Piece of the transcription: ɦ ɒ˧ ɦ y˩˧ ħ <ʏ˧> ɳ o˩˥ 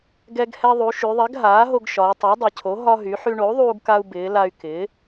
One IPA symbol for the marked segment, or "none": y˧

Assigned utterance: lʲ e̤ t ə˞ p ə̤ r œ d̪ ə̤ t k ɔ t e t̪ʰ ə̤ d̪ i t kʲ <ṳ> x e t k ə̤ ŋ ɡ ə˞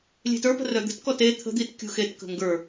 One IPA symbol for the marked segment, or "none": ṳ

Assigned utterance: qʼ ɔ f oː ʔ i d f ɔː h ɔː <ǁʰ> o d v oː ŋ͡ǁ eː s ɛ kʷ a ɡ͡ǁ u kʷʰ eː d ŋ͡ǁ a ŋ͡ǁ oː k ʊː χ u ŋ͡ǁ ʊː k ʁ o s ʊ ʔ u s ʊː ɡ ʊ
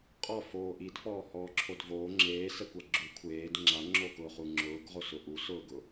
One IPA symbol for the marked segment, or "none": ǁʰ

